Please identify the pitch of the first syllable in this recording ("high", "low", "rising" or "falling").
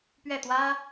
falling